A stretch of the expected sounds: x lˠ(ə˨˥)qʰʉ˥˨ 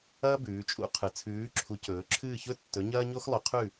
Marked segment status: incorrect: ɵ˨˥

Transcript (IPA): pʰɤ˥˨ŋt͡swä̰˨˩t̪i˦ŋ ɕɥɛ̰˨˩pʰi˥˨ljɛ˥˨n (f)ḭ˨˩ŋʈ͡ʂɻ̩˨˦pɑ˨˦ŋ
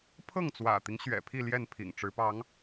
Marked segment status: incorrect: pʰ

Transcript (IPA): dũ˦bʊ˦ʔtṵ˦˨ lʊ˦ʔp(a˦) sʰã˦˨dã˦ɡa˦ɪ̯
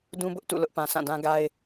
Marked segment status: incorrect: ã˦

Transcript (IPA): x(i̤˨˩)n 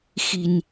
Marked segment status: correct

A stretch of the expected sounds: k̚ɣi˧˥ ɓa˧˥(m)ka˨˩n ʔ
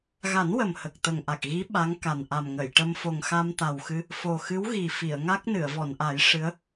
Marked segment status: incorrect: ŋ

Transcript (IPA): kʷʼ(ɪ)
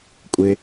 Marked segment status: correct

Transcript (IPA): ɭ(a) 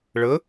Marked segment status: incorrect: ə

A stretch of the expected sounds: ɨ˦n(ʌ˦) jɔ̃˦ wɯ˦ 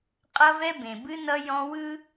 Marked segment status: correct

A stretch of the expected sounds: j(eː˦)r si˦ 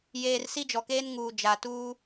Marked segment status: incorrect: eː˨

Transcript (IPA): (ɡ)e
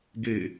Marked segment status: correct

